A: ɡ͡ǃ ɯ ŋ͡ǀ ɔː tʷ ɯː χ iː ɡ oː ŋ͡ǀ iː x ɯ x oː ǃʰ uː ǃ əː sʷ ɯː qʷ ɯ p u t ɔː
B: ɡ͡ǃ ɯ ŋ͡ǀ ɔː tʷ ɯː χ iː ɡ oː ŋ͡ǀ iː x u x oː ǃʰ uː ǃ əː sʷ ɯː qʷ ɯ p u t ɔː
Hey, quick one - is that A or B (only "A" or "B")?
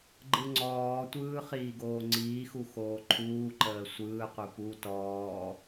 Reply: B